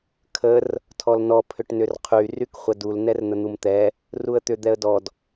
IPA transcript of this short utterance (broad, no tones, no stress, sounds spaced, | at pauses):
kʰ ə r | tʰ ɔ l n ɔ pʰ ʏ ʈ n ʏ r qʰ y r y k χʷ ə d u l n ɛ r n̪ ə n̪ u m t̪ ɛ | r u ə̯ t̪ ʏ d̪ ɛ ə̯ d ɔ d